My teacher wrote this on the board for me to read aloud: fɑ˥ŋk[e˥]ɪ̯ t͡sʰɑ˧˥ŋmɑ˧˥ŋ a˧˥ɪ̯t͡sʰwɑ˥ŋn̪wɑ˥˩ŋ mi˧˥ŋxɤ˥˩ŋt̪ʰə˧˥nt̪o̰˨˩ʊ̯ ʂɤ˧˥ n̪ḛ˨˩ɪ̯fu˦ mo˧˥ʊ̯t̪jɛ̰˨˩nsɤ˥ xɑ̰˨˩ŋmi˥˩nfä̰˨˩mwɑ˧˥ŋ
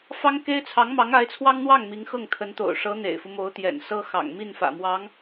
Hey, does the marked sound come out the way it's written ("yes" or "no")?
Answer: yes